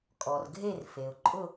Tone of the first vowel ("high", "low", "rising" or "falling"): low